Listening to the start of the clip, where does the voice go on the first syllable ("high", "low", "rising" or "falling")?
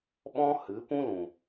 high